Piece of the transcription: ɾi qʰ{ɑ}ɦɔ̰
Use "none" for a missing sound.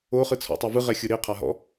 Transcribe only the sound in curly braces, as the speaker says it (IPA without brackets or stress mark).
a